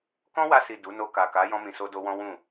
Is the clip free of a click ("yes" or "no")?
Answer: yes